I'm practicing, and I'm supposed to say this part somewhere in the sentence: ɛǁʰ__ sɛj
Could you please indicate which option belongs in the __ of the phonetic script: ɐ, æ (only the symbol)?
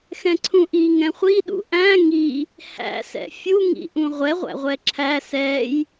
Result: æ